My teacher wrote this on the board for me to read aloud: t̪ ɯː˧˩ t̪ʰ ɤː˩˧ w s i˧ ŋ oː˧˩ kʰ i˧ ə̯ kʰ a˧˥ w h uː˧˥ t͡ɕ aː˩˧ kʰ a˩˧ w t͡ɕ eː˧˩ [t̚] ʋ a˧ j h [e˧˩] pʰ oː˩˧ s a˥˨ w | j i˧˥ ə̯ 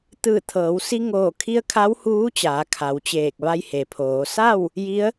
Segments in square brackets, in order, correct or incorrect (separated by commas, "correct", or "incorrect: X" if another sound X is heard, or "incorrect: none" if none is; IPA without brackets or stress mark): incorrect: k̚, incorrect: e˩